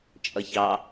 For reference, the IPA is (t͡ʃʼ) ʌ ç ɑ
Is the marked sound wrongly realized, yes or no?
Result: no